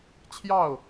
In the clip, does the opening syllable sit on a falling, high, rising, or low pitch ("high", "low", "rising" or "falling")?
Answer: falling